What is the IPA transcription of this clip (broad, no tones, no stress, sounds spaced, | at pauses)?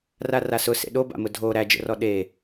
r a r a s ʊ s ḛ ɗ o b a̰ m ʊ dʱ o ɾ æ d͡ʒ ə̰ r ɔ ɗ e